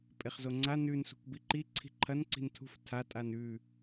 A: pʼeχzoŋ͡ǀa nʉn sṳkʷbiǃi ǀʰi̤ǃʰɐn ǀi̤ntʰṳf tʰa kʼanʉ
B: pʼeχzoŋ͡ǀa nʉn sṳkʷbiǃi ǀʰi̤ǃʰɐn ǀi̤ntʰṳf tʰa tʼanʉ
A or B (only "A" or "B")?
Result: B